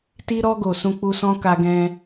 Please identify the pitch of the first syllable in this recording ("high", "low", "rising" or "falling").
high